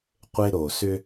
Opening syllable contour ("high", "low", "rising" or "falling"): high